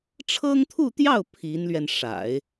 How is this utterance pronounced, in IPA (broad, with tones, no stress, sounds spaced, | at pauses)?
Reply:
ʈ͡ʂʰ ɤ˥ ŋ t̪ʰ u˥˧ t̪ j ɑ˥˩ ʊ̯ pʰ i˧˥ n l ɥ ɛ˧ n ʂ a̰˨˩˦ ɪ̯